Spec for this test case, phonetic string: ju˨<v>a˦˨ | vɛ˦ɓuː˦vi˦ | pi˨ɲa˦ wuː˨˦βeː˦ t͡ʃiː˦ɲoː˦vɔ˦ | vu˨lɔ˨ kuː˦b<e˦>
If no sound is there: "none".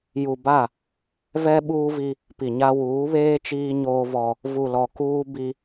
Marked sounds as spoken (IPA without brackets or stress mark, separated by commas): b, i˦